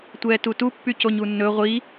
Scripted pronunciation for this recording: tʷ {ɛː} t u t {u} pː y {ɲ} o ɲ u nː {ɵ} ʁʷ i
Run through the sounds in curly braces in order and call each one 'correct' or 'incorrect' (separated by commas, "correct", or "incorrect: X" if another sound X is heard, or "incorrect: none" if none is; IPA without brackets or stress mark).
correct, correct, incorrect: c, correct